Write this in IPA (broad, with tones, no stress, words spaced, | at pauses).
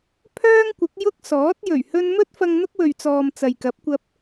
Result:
pʰœː˥ŋkʷɪ˨˥k̚ jʊ˥k̚ sɔː˨˥t̚ jɵ˨˩ɥhɵ˧n mɵ˥t̚fɐ˧ŋ n̪ʊ˥k̚wɵ˨ɥt͡sɔː˨m t͡sɐ˨jkɐ˨˥p̚kʷɐ˧p̚